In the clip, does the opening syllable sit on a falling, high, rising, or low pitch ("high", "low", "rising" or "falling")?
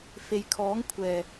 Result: low